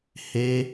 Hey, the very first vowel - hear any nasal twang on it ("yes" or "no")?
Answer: no